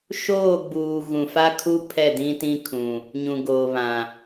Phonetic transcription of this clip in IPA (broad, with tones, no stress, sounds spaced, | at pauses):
ʃ oː˦˨ ɡ͡b uː˨ ɣ ũ˨ f a˦ kʰ u˦ pʰ ɛ˦˨ d ĩ˦ t ĩ˦ kʰ ũ˨ | ɲ ũ˨ ɡ oː˨ β ã˨